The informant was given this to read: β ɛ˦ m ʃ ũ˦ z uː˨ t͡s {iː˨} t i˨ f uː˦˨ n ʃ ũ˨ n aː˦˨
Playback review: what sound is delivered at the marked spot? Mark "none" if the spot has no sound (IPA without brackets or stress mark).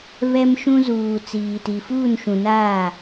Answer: iː˨